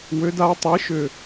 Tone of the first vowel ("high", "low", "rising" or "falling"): rising